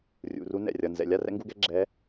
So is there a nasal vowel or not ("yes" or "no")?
no